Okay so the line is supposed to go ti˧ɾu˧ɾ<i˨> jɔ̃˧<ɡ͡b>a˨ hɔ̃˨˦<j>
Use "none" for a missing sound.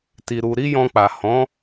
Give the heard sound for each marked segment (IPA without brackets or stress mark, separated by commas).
i˦, k͡p, none